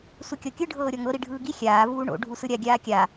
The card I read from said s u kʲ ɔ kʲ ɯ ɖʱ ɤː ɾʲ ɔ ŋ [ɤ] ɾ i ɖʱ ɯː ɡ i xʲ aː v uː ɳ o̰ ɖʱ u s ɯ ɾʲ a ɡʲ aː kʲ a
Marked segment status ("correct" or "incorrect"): correct